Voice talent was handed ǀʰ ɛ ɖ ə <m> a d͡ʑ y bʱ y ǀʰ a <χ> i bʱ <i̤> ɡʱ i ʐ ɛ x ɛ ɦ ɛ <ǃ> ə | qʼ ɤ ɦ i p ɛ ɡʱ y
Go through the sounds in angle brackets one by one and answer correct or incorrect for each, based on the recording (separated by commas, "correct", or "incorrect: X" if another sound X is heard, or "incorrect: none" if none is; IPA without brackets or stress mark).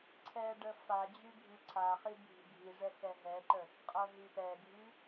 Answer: incorrect: f, correct, correct, correct